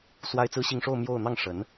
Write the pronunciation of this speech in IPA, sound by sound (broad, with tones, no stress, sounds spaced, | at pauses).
s w a˥ ɪ̯ t͡s ɹ̩˥ ɕ i˥˧ ŋ ʂ o˥˧ ʊ̯ m j o˥˧ ʊ̯ n̪ ɑ˥˩ ŋ ʂ ə˧˥ n